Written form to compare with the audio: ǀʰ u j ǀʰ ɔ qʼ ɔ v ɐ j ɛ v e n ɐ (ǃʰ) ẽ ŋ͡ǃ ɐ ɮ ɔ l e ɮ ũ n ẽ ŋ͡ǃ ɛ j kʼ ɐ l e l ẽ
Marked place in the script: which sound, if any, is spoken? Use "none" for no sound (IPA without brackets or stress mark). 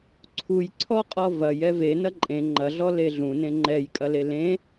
ǃʼ